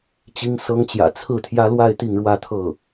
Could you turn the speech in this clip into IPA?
t͡ɕ i˥ ŋ s ɤ˥ ŋ t͡ɕ j ä̰˨˩ t͡sʰ ɹ̩˥˩ t̪ʰ j ä˥ l w a˥˧ ɪ̯ t̪ i˥˧ ŋ ɻ w ä˥˧ t̪ʰ ɤ˥˩

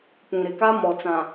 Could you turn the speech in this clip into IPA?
p ũ˨ ɾ ɪ˨ k a˦ m ɔ˨ t͡s ã˨

